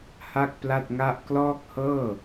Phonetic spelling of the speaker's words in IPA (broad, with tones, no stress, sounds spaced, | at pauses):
h a˥˩ k̚ p l a˥˩ t̚ ŋ a˥˩ ʔ k l ɔː˥˩ k̚ h ɤː˥˩